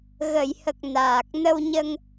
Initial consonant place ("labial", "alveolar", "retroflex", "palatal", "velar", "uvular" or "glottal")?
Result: velar